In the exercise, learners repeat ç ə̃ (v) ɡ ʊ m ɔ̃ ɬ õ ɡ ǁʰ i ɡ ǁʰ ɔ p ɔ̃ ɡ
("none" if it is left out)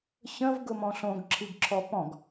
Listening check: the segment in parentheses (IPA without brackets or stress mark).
v